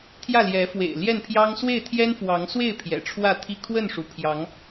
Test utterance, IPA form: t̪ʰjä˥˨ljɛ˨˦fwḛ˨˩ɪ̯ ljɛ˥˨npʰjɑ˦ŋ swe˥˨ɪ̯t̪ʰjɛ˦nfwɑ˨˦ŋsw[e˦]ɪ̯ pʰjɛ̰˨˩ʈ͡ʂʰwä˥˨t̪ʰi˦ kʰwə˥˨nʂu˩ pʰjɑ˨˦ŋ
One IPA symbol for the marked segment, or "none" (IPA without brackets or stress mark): e˥˨